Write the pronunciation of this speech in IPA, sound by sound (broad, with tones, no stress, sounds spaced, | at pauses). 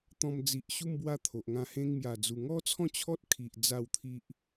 t̪ ɔ̃˧ m d͡z i˨ ʔ ɕ u˥˧ m b w a˥˧ t̪ʰ o˨ ʔ ŋ ã˧ h ẽ˧ ŋ m j a˨˩ d͡z u˨˩ ŋ ɔ˦ t͡sʰ ɔ̃˥˧ t͡ɕʰ ɔ˦ t̚ kʰ i˨ ʔ d͡z a˥˧ w t̪ʰ i˦ ʔ